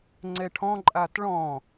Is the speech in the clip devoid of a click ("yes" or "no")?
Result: no